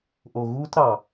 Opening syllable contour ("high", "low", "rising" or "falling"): low